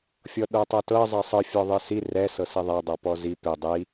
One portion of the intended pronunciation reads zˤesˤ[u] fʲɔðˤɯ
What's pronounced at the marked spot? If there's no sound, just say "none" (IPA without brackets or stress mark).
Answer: ɯ